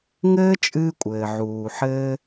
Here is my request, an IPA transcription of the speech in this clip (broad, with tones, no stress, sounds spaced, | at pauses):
ŋ ɘː˥ t͡ʃʼ ɨː˥ kʷʼ ɘː˩ ʕ uː˩ ħ ɘː˥